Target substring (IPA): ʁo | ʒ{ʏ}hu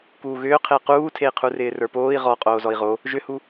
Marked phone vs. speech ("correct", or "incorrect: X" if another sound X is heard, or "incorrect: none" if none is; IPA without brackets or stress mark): correct